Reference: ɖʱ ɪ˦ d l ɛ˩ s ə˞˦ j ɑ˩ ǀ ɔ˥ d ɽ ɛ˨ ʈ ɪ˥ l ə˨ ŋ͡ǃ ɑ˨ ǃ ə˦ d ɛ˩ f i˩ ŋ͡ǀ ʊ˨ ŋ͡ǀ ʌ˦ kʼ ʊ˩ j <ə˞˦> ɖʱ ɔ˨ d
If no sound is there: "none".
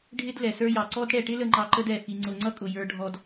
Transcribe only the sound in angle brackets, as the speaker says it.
ə˞˨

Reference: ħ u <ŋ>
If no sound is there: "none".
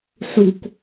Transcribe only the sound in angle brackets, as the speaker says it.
k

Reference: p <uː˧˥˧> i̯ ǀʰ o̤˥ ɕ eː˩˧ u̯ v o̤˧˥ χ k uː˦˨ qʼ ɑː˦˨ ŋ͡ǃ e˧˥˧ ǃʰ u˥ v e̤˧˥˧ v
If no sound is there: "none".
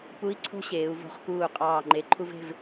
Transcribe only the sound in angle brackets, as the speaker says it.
u˧˥˧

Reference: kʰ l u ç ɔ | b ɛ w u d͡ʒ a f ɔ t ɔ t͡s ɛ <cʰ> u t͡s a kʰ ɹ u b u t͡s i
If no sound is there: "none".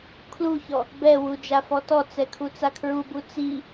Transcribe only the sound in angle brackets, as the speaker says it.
kʰ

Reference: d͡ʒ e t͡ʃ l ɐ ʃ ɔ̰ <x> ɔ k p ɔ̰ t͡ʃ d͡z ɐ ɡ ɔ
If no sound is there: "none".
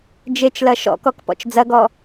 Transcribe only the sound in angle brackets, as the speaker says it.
k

